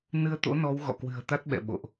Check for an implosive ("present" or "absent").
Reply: present